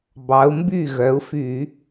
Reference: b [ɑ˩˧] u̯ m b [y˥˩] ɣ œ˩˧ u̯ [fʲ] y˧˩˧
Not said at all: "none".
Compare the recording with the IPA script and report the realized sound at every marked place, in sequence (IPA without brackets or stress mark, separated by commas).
ɑ˩˧, y˥˩, f